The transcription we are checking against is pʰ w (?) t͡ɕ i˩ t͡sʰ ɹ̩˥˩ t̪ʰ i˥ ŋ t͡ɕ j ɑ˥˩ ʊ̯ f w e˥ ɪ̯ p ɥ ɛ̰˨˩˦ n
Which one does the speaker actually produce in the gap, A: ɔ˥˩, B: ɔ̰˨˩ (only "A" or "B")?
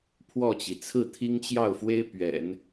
A